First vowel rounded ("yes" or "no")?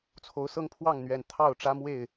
yes